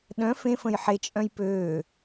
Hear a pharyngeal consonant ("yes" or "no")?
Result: yes